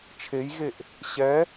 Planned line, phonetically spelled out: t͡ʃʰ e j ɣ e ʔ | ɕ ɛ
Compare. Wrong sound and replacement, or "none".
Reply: none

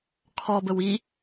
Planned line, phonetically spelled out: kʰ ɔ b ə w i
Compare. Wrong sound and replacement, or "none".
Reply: none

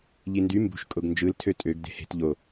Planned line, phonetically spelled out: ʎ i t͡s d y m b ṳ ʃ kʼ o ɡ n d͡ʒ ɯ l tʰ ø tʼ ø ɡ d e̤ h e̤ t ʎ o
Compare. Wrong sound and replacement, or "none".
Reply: t͡s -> n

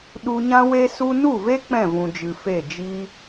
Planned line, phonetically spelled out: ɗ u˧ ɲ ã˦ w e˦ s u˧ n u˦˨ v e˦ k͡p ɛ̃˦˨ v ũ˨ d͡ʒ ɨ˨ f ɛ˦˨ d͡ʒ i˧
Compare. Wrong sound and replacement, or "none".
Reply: ɛ˦˨ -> e˦˨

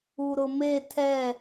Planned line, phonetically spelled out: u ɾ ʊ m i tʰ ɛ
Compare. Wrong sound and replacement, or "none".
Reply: i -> e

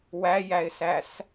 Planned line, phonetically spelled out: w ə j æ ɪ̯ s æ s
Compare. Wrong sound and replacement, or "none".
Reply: ə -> æ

